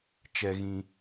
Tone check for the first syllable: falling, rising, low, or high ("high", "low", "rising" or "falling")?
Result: low